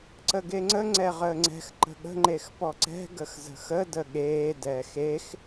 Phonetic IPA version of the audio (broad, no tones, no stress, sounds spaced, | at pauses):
ǀ ə ɡ e ŋ͡ǀ ə ŋ͡ǀ ɛ ʁ əː ŋ͡ǀ ɛ̤ x ǃ ə̤ ɠ ə̤ ŋ͡ǃ e x p ɔ ǀ ɛ̤ ɡ ə x z ə̤ x ə d ə ɠ eː d ɛː x e x